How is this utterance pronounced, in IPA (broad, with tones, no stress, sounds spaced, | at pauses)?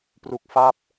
p r u˦˥ k̚ f a˥˩ p̚